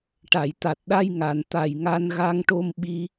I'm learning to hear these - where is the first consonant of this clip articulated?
retroflex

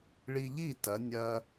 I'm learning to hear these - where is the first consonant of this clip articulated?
retroflex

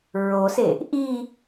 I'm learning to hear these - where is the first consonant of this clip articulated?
tongue tip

